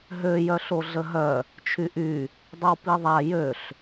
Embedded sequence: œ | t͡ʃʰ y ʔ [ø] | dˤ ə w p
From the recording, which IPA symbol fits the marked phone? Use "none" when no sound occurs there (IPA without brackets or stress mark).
y